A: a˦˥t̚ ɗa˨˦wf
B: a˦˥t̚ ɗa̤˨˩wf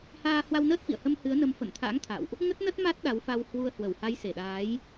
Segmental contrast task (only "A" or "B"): A